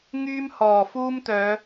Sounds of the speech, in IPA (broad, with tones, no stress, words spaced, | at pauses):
ŋyː˥mhɔː˨˩fuː˥mt̪œː˨˧